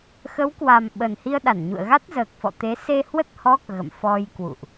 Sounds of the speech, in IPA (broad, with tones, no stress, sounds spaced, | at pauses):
x ə˨˦ w k w a˨˩ m ɓ ə˨˩ n h i˧ ə̯ ɗ a˧˩ n ɲ ṵ˧˨ ə̯ ɣ a˦˥ t̚ z əː˨˩ k̚ f ɔ̰˧˨ t̪ e˨˦ s e˧ h w ə˦˥ t̚ h ɔ˦˥ k̚ ɣ ə̰˧˨ m f ɔ˧ j k w ṵ˧˨ ʔ